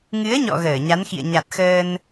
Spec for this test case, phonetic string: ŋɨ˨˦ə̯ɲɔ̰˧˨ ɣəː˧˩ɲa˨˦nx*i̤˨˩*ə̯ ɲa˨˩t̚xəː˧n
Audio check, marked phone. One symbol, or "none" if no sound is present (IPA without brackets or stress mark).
ḭ˧˨